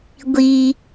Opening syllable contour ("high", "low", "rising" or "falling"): high